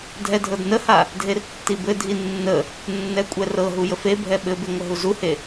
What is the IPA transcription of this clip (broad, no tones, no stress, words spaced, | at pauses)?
dʱɛdʱɤdnəha | dʱertːibɘdʱi nːə | nːɛkʷʼɛrɤɦu jəfebʱɛ ɓɘbe ŋʷəɦuzuhe